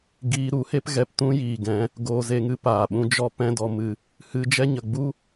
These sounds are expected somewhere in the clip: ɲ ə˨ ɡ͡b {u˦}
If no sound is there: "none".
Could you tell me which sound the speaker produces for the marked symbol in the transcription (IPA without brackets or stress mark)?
u˦